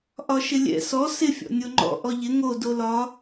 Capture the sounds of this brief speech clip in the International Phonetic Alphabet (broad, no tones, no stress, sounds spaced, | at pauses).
ʔ ɒ ʃ ɪ lʲ ɛ̰ s ɔ s ɪ fʲ ɔ̰ nʲ o ŋ͡ǃ ɔ̰ ʔ ɔ ʎ ɪ ŋ o d o l ɒ